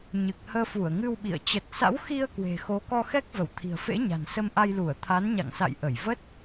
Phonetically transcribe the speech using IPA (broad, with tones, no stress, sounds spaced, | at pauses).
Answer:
ɲ ɨ˨˩ k̚ h əː˧ f u˧˩ ə̯ ŋ ɨ˧ w ɓ ḭ˧˨ ə̯ t͡ɕ ə˨˩ t̚ s a̰˧˥ w x i˧ ə̯ k w e̤˨˩ x o˨˦ k ɔ˧ x ɛ˦˥ k̚ v ə˧˩ w t̪ʰ i̤˨˩ ə̯ f ḛ˧˥ ɲ a̤˨˩ n s ə˧ m ʔ a˧ j l u˧˩ ə̯ t̪ʰ a˨˦ n ɲ a̰˧˨ ŋ s a̰˧˨ j ʔ ə˧˩ j v ə˦˥ t̚